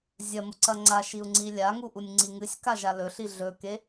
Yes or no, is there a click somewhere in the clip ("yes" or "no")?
yes